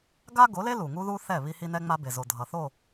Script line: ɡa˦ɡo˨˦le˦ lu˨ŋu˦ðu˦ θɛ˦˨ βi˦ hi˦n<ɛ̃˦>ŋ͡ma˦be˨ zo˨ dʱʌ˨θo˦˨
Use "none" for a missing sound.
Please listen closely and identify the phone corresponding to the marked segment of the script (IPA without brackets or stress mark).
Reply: ɛ˦